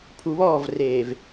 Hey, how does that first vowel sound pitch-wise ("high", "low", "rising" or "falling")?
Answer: low